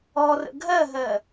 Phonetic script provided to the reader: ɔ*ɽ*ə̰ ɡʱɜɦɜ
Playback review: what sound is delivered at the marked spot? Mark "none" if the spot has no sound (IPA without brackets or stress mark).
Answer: r